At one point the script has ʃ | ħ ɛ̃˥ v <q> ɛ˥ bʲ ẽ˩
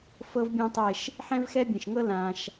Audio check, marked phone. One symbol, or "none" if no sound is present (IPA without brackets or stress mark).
x